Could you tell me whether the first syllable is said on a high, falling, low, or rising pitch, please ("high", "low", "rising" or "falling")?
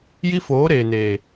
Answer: high